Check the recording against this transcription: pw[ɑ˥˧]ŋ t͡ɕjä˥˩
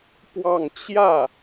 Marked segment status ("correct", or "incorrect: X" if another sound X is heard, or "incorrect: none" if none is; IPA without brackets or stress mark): correct